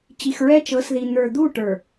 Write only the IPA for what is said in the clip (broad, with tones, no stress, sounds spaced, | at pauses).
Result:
t͡ɕ i˨ x ɹ ɛ˦ t͡ʃ ɤ˨˦ s ð i˨ n̪ ə˞˨ d̪ u˦˨ ʈ ə˞˨